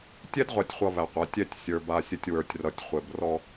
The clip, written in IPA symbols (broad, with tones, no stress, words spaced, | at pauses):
tʲɛ˦dʁʷa˨tʲχʷʌ˨ βæ˨qʷa˨˦ tʲɛ˦˨tʲ sʲə˞˨ba˨sʲɘ˨tʲ wə˞˨tʲrʌ˨tʲ χʷɘ˨brɔ˦